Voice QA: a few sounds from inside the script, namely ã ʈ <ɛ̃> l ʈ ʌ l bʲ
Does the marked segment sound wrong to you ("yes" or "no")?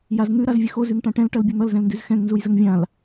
no